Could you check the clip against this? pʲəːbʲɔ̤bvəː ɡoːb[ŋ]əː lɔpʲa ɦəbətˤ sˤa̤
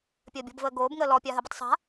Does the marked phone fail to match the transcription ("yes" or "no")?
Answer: no